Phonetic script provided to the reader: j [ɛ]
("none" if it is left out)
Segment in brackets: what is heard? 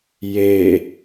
e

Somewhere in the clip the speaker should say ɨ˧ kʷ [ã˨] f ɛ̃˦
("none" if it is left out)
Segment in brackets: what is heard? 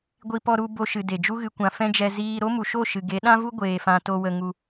ã˨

